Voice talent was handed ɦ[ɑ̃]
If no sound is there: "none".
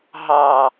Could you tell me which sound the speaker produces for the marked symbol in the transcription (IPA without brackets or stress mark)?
ɑ